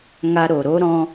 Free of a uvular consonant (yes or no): yes